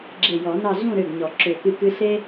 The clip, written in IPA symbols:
ɡ͡ǁ e˧˩ j ɔ˨˩˦ n ɑ˥˧ ɮ ũ˥˧ ɾ ø˧˩ ɡ ɲ ɔ˨˩˦ ǁ ø˧˩ k ɨ˥˧ k ɨ˥ ɬ e˥

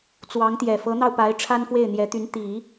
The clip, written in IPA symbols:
t͡s w ɑ˧˥ ŋ t̪ j ɛ˨˩ f ɤ˧˥ n̪ ɑ˧ ʊ̯ p a˧˥ ɪ̯ ʈ͡ʂʰ a˥ n f w e˥˩ ɪ̯ n̪ j ɛ˧˥ t̪ y˧˥ n t̪ i˨˩˦

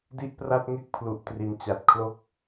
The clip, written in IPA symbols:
d i˥˩ ʔ p r a˥˩ t̚ ŋ e˥˩ k̚ pʰ l u˨˩ ʔ t r i˨˩ n t͡ɕ a˨˩ t̚ kʰ l o˥˩ k̚

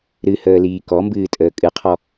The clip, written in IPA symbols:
ɾ ɨ h əː l iː k ɔ m b ɨː tʼ əː kʼ ɨ qʰ ɔ

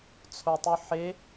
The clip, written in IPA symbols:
t͡sʰ o tˤ u ħ e

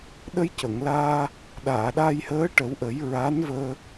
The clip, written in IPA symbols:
ɗ ə˧ j c ə˨˩˨ ŋ l aː˧ | ɗ aː˨˩˨ ɗ a˧ j h əː˧˥ ʈ ə˨˩˦ w ʔ ə˨˩˦ j ɹ a˧˥ n v əː˧

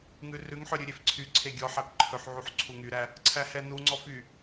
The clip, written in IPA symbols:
ŋ ʉ r ʉ ŋ ħ œ ɾʲ ʉ ɾʲ e f ǀʰ y ǀʰ e ɡʲ ɔ ħ æ p ǃʰ ɵ ħ ʕ u ħ ǀʰ u ŋ y ɾ æ | ǀʰ æ h ɛ n u ŋ͡ǀ ɔ f y

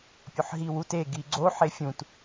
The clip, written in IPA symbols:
pʲ o ħ ɦ i w u t e ɡ i ɡ͡ǀ o ħ e fʲ ũ t

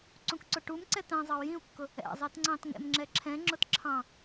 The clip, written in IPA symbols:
ǀ ũ k ǀ ʊ ʈ u m ǀ ɛ t ɛ̃ zˤ ɑ u̯ j ĩ u̯ kː ʊ | ɛ̰ zˤ i t ŋ͡ǀ ɑ̃ t ŋ ɛ̰ m ŋ͡ǁ ɛ ǁʰ ɛ̃ ŋ͡ǁ ʊ t ǁʰ ɑ̃

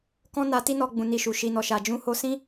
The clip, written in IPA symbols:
k ɔ̃˦ n a˧ t i˦ n ɔ˧ ɡ͡b ũ˨ n i˧ ʃ u˨ ʃ i˨ n ɔ˨ ʃ a˨ d͡ʒ ũ˨˦ h o˧ s ĩ˦

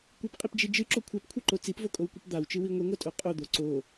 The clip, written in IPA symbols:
kʷ ɨ p qʼ i p d͡ʒ i d͡ʒ ɨ ǁ o kʷʰ a p kʷʰ ɨ ǃ o t͡s i p v o kʼ o w kʷ ɨ p d̪ a w t͡ʃ ɨ w i ŋʷ i ŋʷ a tʼ o qʼ o d̪ o ǀ o

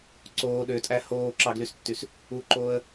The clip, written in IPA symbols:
ǀ oː ɗ ø tʼ æ h oː ǁ ɑ ɡ l y s tː y s | u ǃ oː ə̯

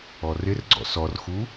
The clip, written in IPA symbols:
ɔ r ɪ r ɡ͡ǀ ɔ̰ s ɔ r x u

